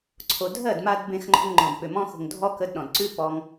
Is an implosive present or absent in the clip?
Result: present